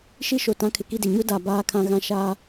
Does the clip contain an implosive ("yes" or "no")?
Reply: no